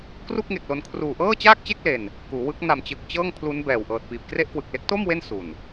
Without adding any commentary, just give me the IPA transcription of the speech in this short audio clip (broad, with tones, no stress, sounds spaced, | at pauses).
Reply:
k r u˥˩ k̚ ŋ e˨˩ k̚ l o˧ n kʰ r uː˨˩ ʔ ɤː˥˩ t͡ɕ aː˥˩ k̚ t͡ɕ e˥˩ k̚ l e˧ n | k uː˩˦ w ɯ˦˥ k̚ n a˨˩ m t͡ɕ ɯ˨˩ k̚ t͡ɕ ɤː˥˩ ŋ pʰ l u˦˥ n b ɛː˨˩ w ʔ ɤː˨˩ t̚ p iː˨˩ p̚ k r e˥˩ ʔ k w ɯ˨˩ k̚ l e˦˥ k̚ t o˥˩ m w e˥˩ n s u˨˩ n